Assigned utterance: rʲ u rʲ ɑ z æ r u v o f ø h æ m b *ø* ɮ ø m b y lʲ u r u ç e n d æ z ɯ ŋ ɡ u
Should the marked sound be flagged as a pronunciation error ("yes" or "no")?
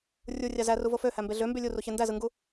yes